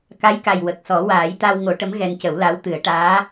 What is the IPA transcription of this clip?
ka˧˥jka˨˩j wə˨˩k̚sɔ˨˩˦ waː˨˩˦jt̪a˧w ŋo˨˩˦ʈə˧˥m ɣɛ˧ncə˨˩˦wla˧˥w t̪ɨ˨˩˦ə̯ʈaː˧˥

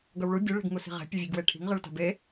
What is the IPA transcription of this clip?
ɡʌwɭu bʲɯ ɭe̤ɡŋusi̤ʁɛ̤ pʲɯvʲɯɡweʈʰi̤ŋ ʁɯɭta̤be

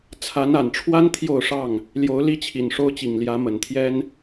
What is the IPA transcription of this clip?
t͡sʰa˨˦na˨˩nʈ͡ʂʰwa˦n t̪ʰjo˥˨ʊ̯ʂɑ˥˨ŋ | ljo˨˦ʊ̯li˦ t͡ɕʰi˨˩nʂo˦ʊ̯t͡ɕi˨˩ŋ ljä˨˦mə˨˩nt̪ʰjɛ˦n

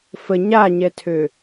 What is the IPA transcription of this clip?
fə ɲaɲɛtʰø

